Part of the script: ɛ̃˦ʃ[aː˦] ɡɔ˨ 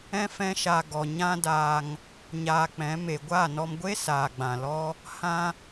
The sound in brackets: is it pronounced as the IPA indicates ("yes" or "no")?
no